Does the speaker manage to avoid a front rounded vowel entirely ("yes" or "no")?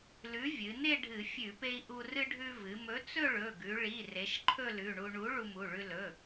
yes